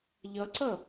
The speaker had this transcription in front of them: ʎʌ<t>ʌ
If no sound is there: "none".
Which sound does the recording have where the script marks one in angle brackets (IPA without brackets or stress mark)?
ǀ